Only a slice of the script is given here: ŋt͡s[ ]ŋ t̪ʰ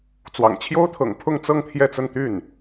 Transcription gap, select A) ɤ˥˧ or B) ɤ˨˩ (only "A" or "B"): A